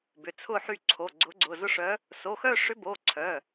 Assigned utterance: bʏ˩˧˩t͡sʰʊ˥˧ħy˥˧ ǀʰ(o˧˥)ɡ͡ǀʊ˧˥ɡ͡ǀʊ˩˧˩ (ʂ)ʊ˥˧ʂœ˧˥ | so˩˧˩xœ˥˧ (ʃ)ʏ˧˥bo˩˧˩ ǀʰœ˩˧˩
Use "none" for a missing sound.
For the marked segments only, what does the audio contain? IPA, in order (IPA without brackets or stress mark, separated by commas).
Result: o˩˧˩, z, ʂ